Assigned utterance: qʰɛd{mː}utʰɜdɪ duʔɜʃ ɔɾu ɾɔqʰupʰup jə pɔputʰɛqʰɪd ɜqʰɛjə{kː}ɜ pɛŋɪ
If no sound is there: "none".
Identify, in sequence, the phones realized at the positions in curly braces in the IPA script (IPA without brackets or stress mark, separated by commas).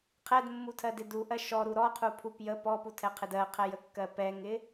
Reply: mː, kː